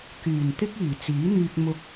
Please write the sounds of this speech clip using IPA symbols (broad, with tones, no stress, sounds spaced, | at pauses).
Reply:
k yː˨˩ n t̪ ɪ˥ k̚ iː˨˩ t͡s iː˨˥ n̪ yː˧ k̚ m ʊ˧ k̚